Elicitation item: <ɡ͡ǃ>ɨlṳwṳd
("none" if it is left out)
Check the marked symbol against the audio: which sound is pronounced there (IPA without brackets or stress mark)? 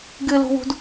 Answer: ɡ